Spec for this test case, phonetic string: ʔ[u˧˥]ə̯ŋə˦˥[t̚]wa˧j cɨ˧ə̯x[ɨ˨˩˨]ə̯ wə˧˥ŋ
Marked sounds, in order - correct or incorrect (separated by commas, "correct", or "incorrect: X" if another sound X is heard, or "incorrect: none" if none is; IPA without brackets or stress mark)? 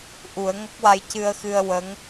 incorrect: u˨˩˦, incorrect: k̚, incorrect: ɨ˧